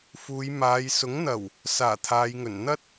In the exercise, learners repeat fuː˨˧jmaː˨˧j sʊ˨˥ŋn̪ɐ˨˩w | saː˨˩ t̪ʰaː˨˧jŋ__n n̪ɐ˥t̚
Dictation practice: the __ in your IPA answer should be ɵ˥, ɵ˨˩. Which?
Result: ɵ˨˩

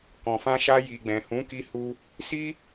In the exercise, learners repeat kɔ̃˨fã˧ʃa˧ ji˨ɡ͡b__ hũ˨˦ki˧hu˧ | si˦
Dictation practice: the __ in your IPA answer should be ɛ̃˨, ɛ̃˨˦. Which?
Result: ɛ̃˨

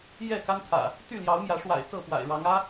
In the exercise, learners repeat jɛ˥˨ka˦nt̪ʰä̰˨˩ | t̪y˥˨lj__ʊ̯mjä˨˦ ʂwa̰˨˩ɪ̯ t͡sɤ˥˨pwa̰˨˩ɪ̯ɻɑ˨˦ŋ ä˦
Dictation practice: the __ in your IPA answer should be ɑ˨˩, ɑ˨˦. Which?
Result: ɑ˨˦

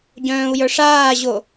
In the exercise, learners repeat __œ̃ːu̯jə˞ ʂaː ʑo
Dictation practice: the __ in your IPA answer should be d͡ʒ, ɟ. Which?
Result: ɟ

